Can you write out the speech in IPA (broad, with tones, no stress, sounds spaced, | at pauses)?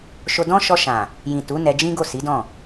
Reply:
ʃ o˧ d ɔ̃˦ ʃ ɔ˧ ʃ ã˨ | j ĩ˨ t u˨˦ n ɛ˧ d͡ʒ ĩ˦ ɡ o˦˨ s i˨˦ d ɔ̃˦˨